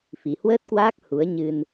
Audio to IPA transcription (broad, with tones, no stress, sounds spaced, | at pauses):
f i˨˩ h w əː˦˥ t̚ k w aː˦˥ k̚ h u˨˦ ə̯ ɲ ɨ˧ n